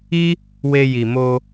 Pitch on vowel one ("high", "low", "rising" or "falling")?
high